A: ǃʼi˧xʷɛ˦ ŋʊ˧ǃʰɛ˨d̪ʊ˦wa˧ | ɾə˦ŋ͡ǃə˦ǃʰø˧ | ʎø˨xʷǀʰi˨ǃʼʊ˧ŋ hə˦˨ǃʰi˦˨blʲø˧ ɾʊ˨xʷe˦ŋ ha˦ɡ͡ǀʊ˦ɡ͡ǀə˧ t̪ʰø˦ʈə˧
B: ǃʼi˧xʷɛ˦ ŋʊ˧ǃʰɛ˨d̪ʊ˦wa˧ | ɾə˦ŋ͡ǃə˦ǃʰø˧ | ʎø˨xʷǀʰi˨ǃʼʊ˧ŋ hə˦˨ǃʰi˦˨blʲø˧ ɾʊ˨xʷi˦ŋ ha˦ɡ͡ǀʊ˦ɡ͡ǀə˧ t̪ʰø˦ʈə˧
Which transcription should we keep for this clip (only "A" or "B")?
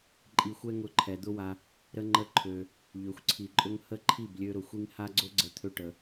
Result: B